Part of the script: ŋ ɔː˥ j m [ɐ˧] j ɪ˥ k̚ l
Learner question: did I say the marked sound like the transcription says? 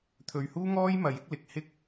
yes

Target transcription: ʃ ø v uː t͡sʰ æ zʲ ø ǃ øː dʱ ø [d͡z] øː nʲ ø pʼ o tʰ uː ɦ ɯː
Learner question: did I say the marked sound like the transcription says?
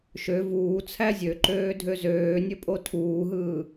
no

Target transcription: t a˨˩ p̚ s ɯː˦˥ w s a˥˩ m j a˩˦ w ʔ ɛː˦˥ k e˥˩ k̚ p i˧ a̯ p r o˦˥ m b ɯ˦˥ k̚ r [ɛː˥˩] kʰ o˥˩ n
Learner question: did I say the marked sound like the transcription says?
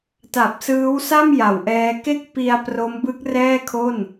yes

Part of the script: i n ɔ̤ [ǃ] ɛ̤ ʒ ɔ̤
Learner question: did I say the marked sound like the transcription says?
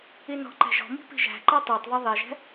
yes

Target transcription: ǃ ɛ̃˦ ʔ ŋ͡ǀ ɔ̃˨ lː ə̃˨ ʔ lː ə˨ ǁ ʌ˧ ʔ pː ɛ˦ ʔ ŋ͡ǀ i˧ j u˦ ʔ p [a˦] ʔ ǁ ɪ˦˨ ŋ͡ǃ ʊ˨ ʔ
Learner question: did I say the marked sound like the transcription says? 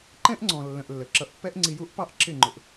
no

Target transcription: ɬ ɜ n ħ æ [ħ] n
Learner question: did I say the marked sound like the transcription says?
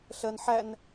no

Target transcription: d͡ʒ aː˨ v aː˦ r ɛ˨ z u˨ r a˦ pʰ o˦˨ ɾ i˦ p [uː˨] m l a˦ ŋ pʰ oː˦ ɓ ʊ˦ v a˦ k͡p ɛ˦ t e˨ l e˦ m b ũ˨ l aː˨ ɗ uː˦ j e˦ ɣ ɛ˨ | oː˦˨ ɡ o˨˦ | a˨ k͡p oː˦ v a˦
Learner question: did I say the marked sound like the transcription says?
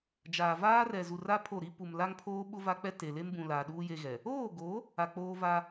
no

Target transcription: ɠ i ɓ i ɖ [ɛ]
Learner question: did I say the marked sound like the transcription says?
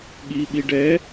yes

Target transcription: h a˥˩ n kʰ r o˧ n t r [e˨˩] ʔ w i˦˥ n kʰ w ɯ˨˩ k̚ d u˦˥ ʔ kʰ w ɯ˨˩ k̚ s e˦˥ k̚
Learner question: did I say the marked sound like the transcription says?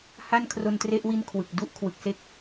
no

